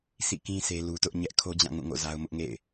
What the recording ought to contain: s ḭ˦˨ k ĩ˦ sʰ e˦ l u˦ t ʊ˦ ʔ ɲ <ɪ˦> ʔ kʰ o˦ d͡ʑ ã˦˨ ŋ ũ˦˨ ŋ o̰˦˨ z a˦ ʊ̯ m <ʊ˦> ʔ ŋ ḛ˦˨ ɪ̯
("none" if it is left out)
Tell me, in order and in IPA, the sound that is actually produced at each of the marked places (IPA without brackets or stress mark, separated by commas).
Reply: ɛ˦, ʊ˦